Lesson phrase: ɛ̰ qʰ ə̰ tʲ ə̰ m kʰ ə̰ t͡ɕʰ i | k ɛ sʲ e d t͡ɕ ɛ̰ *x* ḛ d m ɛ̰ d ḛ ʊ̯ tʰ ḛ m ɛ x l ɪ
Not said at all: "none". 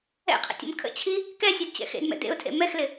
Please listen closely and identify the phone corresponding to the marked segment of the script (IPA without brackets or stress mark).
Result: x